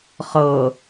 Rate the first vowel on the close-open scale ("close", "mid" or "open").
mid